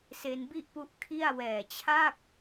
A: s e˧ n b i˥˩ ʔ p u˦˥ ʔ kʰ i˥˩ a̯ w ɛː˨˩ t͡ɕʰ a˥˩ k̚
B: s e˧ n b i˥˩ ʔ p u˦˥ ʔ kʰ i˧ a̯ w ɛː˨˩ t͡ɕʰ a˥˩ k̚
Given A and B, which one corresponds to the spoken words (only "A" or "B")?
A